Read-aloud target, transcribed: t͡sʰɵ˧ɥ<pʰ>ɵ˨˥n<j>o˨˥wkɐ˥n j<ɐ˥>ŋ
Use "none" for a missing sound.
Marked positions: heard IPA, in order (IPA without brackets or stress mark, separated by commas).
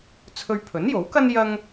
pʰ, j, ɐ˥